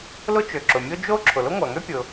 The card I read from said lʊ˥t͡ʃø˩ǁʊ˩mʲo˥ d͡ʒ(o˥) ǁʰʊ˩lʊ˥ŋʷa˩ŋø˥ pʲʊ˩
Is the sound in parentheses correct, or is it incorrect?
correct